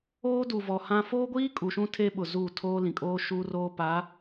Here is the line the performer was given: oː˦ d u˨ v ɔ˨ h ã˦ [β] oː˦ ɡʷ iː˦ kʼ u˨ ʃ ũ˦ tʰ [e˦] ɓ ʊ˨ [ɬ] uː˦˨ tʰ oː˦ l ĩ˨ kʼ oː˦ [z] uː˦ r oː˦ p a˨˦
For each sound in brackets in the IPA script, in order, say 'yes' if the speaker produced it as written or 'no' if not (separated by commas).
no, yes, no, no